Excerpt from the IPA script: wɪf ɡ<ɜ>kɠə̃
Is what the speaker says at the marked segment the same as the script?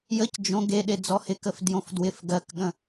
yes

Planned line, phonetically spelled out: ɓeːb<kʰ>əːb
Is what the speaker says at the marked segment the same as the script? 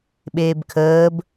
yes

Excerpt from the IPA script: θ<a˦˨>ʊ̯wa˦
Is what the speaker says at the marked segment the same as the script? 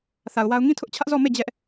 no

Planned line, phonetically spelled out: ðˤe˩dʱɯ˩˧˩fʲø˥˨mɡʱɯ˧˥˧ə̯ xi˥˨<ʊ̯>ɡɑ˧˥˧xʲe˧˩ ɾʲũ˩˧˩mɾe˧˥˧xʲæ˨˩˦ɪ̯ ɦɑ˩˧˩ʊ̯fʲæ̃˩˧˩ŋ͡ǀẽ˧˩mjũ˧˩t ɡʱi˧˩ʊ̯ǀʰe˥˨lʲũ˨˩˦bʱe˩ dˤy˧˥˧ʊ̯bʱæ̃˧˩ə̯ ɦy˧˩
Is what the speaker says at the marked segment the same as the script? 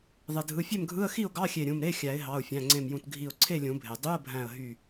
yes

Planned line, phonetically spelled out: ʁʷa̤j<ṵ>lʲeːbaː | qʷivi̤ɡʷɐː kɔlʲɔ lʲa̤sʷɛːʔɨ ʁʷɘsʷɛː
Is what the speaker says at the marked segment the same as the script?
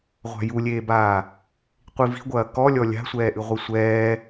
no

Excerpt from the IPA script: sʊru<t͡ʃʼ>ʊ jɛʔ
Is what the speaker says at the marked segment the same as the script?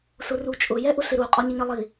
yes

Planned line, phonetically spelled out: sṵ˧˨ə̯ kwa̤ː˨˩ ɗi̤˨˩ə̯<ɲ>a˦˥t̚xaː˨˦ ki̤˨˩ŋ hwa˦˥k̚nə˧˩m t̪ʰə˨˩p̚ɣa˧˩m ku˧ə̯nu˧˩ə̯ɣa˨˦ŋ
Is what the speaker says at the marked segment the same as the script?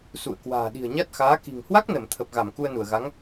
yes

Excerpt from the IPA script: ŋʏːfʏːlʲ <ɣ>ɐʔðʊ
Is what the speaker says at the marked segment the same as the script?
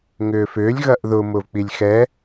yes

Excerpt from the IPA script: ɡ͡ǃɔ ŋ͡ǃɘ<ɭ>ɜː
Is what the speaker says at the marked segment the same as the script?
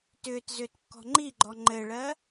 yes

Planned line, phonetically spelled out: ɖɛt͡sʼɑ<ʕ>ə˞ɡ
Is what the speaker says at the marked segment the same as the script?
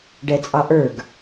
no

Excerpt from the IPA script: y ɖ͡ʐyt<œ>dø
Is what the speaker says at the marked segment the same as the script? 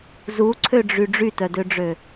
yes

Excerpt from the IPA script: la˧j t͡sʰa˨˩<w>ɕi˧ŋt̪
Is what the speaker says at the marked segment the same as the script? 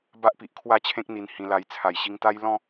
no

